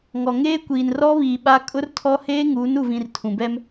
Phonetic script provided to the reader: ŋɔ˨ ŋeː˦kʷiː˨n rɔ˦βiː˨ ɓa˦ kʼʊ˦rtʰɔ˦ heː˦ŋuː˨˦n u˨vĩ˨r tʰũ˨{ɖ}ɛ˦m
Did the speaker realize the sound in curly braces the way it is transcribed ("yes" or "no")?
no